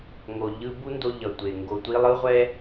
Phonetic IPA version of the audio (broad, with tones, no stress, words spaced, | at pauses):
ŋo˩ʎɯ˧bu˥ndo˧ ʎʌ˩tʷe˩ ŋɡo˩tʷi˧lˠɯ˥ʁʷɛ˥